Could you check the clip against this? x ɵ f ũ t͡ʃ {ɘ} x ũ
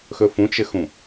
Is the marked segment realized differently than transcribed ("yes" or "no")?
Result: no